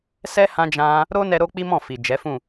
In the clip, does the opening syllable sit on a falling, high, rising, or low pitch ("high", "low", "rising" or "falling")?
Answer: high